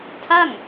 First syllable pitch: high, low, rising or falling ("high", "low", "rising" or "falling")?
falling